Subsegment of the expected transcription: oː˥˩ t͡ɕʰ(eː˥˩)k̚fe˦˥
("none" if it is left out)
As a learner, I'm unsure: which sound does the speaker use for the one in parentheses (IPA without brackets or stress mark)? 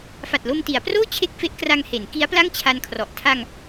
e˥˩